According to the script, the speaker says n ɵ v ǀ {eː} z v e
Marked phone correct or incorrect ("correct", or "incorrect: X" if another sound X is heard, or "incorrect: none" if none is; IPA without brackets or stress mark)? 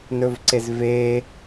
incorrect: e